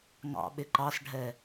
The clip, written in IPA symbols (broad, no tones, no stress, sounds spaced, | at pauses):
ŋ ɑ̰ ɓ ɪ ǃ ɑ s ɖʱ ɛ